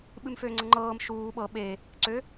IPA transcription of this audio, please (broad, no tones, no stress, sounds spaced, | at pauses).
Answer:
ɓ ɨ m f ø ŋ͡ǀ ɤ ŋ͡ǃ ɤː m ʃ uː ɓ ɤ ɓ e | ǀ ø